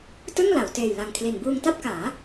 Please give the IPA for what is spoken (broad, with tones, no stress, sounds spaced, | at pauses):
t ɯ˥˩ ŋ l a˩˦ w t eː˨˩ j l a˨˩ ŋ kʰ l i˨˩ n b uː˧ ŋ t a˥˩ p̚ k aː˩˦